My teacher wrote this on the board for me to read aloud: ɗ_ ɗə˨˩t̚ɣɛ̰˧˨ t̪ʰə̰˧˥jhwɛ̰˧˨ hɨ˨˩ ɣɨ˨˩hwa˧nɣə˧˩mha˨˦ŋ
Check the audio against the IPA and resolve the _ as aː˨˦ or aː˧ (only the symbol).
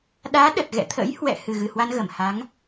aː˨˦